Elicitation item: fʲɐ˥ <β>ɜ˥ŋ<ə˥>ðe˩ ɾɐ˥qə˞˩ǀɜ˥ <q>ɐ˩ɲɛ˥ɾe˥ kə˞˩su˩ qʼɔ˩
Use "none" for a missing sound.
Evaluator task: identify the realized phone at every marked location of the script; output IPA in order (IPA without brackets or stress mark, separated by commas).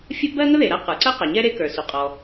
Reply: b, ə˥, q